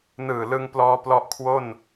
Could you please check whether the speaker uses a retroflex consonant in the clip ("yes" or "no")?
no